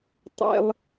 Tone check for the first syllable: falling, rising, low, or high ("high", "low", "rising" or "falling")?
high